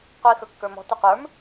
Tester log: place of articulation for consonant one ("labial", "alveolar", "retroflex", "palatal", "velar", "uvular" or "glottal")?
uvular